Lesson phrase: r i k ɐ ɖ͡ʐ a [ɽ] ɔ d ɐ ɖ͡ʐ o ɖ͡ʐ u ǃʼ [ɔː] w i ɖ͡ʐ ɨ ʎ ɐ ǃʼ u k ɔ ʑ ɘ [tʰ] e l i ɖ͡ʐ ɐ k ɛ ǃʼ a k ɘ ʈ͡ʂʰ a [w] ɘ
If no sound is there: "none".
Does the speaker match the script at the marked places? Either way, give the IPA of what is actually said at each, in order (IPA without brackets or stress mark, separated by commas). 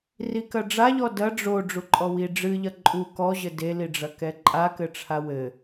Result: ʎ, ɔ, d, w